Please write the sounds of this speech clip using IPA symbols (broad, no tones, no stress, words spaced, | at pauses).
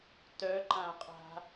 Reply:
tœǃãqʼa̤